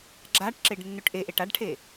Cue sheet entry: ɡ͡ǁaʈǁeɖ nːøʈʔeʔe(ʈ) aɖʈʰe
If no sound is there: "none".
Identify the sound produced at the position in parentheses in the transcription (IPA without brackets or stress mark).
ʈ